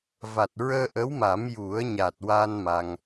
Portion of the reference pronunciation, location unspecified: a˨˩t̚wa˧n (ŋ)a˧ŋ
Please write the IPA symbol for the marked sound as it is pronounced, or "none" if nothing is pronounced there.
m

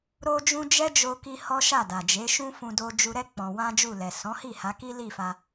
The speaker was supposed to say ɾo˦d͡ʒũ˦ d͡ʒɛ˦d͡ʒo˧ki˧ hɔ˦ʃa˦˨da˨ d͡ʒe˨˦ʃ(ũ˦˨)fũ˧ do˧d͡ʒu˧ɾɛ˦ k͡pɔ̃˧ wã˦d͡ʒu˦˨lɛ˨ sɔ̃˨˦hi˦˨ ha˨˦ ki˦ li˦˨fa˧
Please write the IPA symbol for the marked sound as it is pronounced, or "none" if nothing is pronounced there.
ũ˦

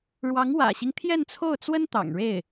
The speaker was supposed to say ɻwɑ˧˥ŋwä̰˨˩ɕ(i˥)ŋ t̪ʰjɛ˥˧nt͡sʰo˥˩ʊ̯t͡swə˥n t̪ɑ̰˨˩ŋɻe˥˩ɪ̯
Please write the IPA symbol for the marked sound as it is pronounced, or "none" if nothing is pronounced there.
i˦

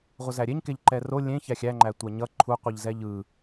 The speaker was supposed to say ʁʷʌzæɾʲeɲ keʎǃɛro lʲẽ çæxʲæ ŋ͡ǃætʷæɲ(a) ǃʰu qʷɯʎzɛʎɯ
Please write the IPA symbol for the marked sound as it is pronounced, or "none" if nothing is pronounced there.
ʌ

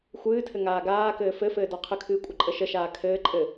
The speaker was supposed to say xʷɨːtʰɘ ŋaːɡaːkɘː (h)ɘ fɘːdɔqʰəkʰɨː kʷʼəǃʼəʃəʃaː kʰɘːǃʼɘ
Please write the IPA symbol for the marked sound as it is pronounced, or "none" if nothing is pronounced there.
f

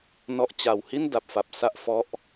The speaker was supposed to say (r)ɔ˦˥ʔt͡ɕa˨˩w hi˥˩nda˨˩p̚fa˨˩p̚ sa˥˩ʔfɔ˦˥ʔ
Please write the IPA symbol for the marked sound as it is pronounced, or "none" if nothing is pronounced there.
n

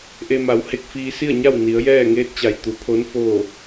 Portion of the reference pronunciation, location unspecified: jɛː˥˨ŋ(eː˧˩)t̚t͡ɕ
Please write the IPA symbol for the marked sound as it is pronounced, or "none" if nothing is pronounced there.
eː˧˥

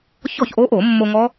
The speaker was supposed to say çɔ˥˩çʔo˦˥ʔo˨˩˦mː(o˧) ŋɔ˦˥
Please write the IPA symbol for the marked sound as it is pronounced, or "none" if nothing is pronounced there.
o˧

